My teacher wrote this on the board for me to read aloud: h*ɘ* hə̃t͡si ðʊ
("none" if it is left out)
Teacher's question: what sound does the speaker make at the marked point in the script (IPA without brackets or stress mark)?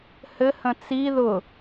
ɘ